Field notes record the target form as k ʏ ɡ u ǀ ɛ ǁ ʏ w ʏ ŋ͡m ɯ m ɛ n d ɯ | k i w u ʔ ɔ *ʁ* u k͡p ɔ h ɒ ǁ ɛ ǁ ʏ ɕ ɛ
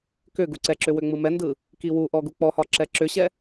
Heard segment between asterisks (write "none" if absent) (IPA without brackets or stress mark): ɡ